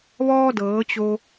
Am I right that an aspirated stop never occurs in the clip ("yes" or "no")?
yes